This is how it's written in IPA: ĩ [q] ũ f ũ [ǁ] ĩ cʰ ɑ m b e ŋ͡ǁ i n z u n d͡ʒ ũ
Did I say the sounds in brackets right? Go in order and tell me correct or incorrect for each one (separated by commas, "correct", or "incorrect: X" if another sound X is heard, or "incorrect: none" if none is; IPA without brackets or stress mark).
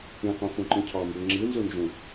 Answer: correct, incorrect: ǃ